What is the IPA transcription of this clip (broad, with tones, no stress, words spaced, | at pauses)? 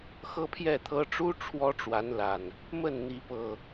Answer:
xɤ˦pʰjɛ˥˨t̪ʰɤ˦ ʈ͡ʂu˦ ʈ͡ʂʰwɔ˦ʈ͡ʂwa˨˦nla˨˩n | mə˥˨n n̪i˨˦pɤ˨˩